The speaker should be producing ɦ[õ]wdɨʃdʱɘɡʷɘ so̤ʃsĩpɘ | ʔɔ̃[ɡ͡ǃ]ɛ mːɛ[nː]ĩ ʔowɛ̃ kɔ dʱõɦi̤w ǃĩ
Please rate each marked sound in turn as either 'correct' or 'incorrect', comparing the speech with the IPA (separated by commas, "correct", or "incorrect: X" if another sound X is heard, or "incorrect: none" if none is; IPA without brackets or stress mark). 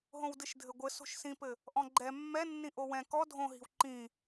correct, correct, correct